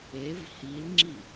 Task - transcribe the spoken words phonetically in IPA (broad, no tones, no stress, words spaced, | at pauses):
ev hilŋ͡ǁi